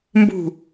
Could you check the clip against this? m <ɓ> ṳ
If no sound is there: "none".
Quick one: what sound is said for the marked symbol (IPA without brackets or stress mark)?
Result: b